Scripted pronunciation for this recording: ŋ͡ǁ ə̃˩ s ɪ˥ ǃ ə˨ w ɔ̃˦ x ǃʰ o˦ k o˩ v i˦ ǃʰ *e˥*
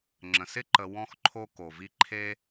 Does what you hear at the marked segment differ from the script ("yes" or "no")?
no